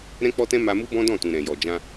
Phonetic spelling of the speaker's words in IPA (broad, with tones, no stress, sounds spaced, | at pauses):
ɾ ɛ̃˦ k͡p ɔ˦ t ɛ̃˦ m a˧ m u˦ b ɔ̃˦ d ɔ̃˦˨ t ũ˨ ɾ ɛ̃˨ j ɔ˨ d͡ʒ ã˧